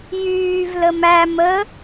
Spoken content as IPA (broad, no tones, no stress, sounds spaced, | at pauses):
j yː v l ə m æ m ə